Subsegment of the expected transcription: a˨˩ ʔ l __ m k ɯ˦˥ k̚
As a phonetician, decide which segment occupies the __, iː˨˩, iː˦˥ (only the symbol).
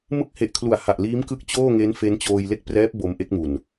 iː˦˥